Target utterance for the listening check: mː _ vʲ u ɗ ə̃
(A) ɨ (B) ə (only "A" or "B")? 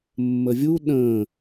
B